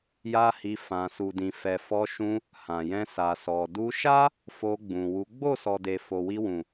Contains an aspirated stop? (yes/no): no